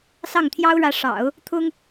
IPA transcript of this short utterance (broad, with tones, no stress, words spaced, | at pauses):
sɑ˥˩ŋt̪ʰjɑ˥ʊ̯ɻä˧˥ ʂɑ̰˨˩˦ʊ̯ | t̪ʰʊ˥ŋ